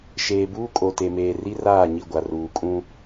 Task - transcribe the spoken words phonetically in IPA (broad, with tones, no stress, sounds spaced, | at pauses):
ʃ eː˨ b uː˦ kʼ o˨ t e˨ m eː˨ r i˦ r aː˦˨ ɲ i˦˨ ɡʷ a˨ r uː˨ kʼ ũ˦